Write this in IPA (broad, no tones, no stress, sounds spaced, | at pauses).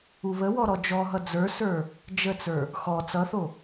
u β ə w ɔ ɾ ɔ d͡ʒ ɔ ɦ ʌ d͡z ə˞ s ə˞ | d͡ʒ ə t͡s ə˞ | x ɔ t͡s ʌ θ o